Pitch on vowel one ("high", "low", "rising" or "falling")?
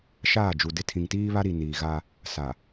falling